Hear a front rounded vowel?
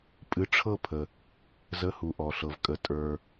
no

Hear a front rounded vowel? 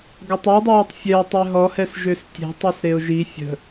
yes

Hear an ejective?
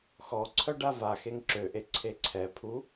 no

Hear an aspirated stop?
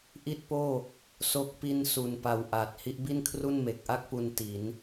yes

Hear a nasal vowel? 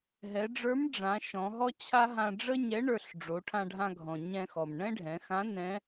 yes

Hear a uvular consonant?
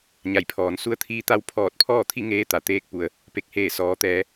no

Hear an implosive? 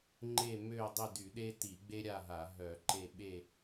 yes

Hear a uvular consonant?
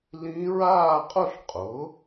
yes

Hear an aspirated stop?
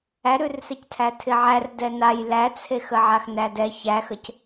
yes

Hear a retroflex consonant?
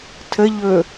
no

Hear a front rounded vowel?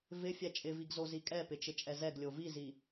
no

